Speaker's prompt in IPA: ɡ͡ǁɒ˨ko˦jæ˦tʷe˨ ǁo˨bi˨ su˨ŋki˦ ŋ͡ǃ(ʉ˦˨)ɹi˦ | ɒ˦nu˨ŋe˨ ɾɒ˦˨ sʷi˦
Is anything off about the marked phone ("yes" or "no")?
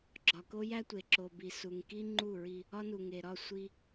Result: yes